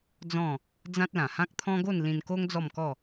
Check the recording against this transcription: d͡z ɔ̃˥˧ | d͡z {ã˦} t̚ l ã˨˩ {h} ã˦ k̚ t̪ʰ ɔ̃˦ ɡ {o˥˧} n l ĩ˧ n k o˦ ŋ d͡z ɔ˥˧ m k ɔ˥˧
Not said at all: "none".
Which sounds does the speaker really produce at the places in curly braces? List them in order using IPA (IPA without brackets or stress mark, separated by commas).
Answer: ã˦, h, o˥˧